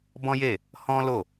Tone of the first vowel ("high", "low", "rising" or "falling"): high